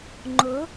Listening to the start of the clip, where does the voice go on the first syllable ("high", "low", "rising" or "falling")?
rising